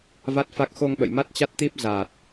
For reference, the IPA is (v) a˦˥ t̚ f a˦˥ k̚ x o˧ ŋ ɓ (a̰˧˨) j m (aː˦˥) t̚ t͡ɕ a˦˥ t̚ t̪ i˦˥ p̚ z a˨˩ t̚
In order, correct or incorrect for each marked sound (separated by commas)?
correct, incorrect, incorrect